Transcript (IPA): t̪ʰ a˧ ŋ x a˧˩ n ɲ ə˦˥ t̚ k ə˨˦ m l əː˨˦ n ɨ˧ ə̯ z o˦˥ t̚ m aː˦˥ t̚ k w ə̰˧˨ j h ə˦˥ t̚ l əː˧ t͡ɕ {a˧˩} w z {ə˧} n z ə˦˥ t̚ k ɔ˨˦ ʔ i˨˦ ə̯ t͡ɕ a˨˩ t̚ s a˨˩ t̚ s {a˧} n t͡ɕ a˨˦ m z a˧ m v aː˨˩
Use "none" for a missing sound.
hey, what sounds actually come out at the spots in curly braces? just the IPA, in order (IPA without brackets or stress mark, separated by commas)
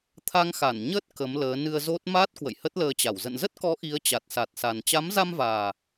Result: a˧˩, ə̰˧˨, a˨˩